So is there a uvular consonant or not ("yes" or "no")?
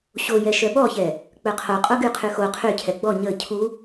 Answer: yes